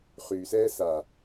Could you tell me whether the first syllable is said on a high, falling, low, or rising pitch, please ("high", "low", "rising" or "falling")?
low